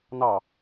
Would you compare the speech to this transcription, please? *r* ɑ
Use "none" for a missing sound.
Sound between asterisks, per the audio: n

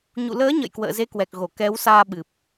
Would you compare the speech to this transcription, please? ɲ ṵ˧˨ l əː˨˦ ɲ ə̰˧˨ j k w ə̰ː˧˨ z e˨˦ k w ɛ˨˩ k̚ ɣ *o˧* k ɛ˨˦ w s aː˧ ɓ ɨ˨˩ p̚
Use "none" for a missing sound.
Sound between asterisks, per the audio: o˧˩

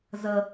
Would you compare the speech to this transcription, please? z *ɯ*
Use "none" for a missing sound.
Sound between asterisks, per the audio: ə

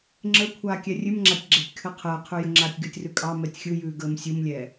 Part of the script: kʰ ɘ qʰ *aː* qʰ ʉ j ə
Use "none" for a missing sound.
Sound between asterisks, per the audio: əː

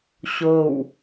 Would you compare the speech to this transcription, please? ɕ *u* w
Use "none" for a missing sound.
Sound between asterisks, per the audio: o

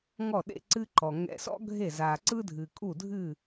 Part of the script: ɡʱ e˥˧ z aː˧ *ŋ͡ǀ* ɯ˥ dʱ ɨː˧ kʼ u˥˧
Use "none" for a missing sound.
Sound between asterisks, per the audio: ǀ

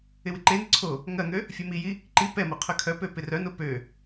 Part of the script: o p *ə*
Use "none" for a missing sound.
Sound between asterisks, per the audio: ø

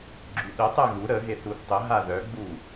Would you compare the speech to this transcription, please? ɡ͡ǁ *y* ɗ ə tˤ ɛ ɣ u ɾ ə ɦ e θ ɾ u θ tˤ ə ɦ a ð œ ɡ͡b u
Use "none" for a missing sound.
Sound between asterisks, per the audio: y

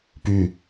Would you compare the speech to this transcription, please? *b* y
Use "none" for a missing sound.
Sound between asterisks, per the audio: p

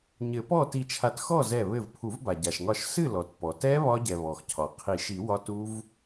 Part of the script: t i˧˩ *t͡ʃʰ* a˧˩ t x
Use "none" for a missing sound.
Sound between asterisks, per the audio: t͡ʃʰ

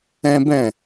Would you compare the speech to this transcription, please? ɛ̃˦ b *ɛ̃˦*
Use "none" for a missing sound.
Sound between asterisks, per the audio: ɛ̃˦˨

